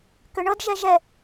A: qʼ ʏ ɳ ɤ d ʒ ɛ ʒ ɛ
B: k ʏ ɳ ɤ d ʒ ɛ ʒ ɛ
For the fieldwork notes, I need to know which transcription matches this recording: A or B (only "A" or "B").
B